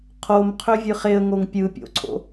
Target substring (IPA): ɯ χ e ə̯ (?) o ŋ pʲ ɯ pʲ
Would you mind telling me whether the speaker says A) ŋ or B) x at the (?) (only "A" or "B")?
A